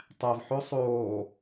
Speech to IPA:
tˤ æ v ħ o sˤ oː

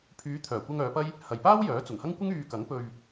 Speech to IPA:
pʰ yː˨˧ t̪ʰ œː˨˩ kʷ ɐ˧ ŋ œː˨˧ p ɐ˥ j | h ɐ˨ j p aː˥ w j œː˨˥ t͡s ʊ˨˩ ŋ h ɐ˥ ŋ kʷ ɪ˥ ŋ yː˧ k ɐ˨˥ ŋ p ɵ˧ ɥ

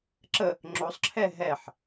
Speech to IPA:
ǁ ə | ŋ͡ǁ o sˤ ǁʰ ɛ ɦ ɛ ħ

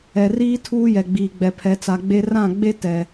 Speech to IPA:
ɛ˨ r iː˦ tʰ uː˦ j ɛ˨ ɡ͡b iː˨ ɡ͡b ɛ˨ pʰ ɛ˨ t͡s a˨ ɡ͡b e˦ r ã˦˨ ɡ͡b e˦ t ɛ˨

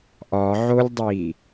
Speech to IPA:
ʔ ɒ ʕ o lʲ dˤ i

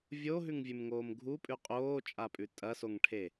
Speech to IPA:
vʲ o ɦ ʉ ŋ vʲ ʉ m ŋ oː m ɡʱ u pʼ ʉ qʼ oː t͡ʃʼ a pʼ ʉ tʼ ɐ s o ŋ ʈʰ e

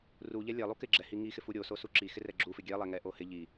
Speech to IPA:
r u ʎ ɛ lʲ ɛ lˠ u k ɪ ɡ͡ǁ ɛ h i ŋ i x ɪ f u ɾʲ o s o s u ǁ i x ɪ r ɛ ɡ͡ǁ u f ɪ ɡʲ ɛ lˠ ɛ ŋ ɛ ʔ o h ɪ ʎ i

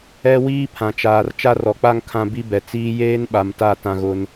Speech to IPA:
ɛ˦ w iː˦ pʰ ã˨ t͡ʃ aː˨ r t͡ʃ a˦ r ɔ˨ k͡p a˦ ŋ kʰ ã˦ b i˦ b ɛ˨ t͡s iː˦ j eː˦ n ɓ a˨ m t a˦˨ t ã˨ ɣ ʊ˨ n

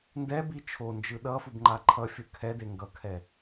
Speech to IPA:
n d ɛ b i t͡ʃʰ o n d͡ʒ ɯ ɗ ʌ f u b ŋ͡ǃ a ǃʰ ʌ fʲ ɯ kʰ ɛ d e ŋ ɡ ʌ kʰ ɛ

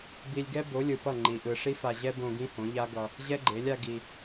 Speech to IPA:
b i˧ lʲ ɡ ɛ˦ b o˨˦ lʲ ɯ˨ p ʌ˦˨ ŋ͡ǃ i˨ ʔ ɯ˨ ʂ i˦ f a˧ ʑ ɛ˦ b õ˧ ɡ ĩ˦ h õ˨˦ ʎ a˦ ɡ ʌ˧ | ʑ ɛ˦ ɡ͡ǃ e˨˦ lʲ a˧ ɡ i˧

